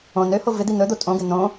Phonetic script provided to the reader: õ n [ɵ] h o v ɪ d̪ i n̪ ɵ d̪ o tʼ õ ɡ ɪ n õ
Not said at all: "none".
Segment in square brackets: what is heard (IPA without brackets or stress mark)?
ø